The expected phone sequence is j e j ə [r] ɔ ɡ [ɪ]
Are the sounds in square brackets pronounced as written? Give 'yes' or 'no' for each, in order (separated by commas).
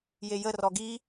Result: yes, no